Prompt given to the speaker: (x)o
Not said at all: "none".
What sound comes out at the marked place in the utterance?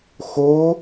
x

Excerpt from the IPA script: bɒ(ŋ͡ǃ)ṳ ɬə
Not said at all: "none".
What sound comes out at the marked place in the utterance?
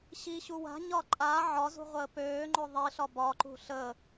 ǃ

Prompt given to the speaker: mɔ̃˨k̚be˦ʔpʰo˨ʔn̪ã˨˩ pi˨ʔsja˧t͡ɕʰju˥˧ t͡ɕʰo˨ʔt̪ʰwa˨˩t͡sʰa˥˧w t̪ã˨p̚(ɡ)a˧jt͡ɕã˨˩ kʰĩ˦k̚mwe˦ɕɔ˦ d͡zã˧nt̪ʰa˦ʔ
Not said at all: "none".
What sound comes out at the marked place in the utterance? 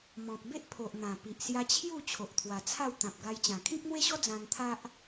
ɡ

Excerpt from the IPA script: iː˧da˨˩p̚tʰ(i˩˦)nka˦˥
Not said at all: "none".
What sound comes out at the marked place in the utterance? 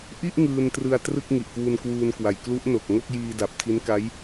i˦˥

